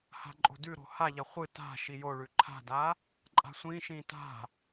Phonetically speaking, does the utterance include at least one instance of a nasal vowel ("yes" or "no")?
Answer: yes